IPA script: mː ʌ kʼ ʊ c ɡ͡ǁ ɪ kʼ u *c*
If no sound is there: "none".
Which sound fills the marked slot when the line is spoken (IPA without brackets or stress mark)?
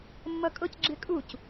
c